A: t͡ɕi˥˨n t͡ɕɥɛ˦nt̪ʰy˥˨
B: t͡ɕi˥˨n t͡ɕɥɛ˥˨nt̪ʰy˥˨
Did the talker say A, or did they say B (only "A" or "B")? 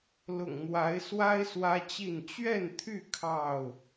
B